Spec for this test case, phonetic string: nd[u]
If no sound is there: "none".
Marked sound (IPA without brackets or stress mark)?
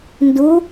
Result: u